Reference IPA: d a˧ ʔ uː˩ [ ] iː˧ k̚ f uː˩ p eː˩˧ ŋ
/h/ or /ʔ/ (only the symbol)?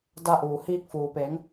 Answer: h